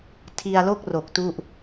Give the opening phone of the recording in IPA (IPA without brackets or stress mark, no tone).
tʰ